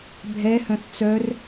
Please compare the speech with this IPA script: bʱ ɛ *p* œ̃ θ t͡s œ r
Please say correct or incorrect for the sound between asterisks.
incorrect